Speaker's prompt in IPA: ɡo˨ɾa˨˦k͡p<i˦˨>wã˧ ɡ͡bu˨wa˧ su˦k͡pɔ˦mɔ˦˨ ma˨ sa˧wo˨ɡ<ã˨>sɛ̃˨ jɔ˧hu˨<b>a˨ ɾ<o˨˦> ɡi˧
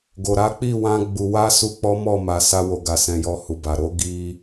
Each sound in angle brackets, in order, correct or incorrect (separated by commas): correct, incorrect, correct, correct